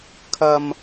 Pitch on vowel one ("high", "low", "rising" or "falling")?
low